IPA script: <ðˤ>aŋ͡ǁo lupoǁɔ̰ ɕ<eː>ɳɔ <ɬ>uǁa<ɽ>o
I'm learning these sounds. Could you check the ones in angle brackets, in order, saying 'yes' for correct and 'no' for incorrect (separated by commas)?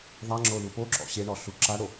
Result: yes, no, yes, yes